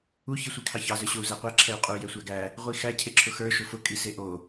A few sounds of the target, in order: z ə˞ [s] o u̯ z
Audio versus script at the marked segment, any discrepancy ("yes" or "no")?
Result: yes